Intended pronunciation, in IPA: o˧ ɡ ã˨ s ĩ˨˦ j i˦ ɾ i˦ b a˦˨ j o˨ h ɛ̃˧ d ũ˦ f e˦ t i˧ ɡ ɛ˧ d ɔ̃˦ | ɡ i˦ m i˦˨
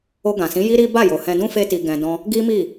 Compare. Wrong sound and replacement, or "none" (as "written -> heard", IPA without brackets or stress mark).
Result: ɛ˧ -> ɛ̃˧